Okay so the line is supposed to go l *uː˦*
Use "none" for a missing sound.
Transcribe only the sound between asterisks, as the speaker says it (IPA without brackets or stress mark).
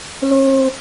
oː˦